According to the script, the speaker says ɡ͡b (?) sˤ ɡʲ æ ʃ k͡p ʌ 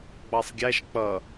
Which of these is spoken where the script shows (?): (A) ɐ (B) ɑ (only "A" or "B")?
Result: B